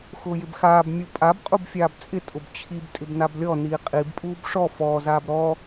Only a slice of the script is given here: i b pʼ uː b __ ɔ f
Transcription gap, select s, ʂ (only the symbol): ʂ